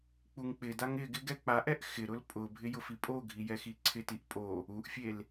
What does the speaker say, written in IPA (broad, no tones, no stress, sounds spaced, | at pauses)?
k͡p u ŋ k͡p ɪ d a ŋ ɪ ɡ ɪ ɡ ɛ k͡p a ʔ ɛ ʔ x ɪ ɾ ʊ l pʼ ʊ bʱ ɪ j ʊ f i pʼ o ɡʱ i j ɛ x i ǀʰ ɪ t i ʔ pʼ o | u ʔ fʲ e l